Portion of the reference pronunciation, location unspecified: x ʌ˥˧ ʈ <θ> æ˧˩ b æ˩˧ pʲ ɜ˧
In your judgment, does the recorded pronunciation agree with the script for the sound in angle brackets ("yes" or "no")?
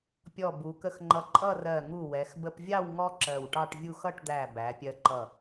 no